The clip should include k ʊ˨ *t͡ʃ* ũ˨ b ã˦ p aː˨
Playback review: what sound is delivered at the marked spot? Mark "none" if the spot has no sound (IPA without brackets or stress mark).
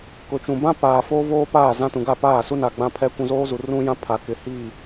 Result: t͡ʃ